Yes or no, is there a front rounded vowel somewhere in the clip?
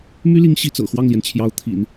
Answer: yes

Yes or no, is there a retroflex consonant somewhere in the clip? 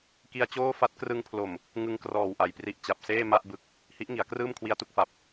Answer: no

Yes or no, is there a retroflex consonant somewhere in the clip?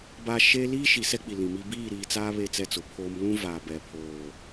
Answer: no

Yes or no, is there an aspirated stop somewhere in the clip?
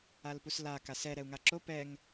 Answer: no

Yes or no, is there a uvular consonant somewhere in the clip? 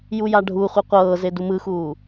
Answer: yes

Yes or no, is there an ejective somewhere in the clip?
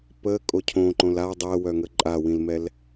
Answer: yes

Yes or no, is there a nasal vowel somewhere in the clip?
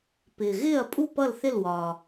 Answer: no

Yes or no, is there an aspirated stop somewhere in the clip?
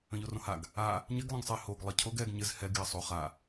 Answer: yes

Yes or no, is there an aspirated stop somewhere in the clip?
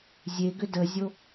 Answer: no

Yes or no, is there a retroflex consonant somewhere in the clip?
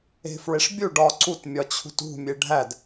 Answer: yes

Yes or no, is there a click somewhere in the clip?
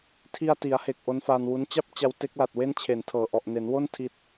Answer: no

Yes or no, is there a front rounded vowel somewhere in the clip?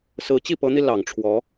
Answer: no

